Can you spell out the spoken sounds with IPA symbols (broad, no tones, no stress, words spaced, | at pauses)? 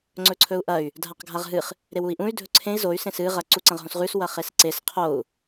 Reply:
ŋ͡ǀɵǀʰɵu̯ʔɐy̯ | dʱaqɡʱaʁɦɨχ | ɾewui̯ʔũy̯ dʱɵǀʰẽi̯ zoy̯ sẽsɨ ʁɐ ǀuǀɐ̃ʁɦõsʁʉs wɐχesǀes qʰou̯